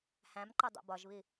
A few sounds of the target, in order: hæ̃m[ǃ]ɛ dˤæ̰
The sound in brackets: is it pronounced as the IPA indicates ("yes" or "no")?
yes